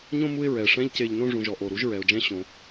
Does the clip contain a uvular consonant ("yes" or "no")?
no